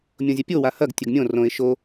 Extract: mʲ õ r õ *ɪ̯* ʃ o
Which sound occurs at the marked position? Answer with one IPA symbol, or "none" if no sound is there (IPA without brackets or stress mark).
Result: ɪ̯